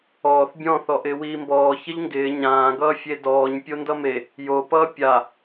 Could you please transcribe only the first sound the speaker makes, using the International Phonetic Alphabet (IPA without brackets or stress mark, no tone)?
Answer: ɔː